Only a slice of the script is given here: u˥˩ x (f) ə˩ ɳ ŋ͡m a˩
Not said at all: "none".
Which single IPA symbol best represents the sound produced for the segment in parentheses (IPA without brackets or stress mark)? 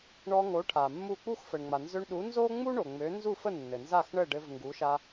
f